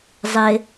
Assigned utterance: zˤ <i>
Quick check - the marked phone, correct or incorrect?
incorrect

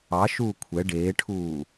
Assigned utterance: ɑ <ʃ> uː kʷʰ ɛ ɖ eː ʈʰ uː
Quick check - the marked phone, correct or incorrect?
correct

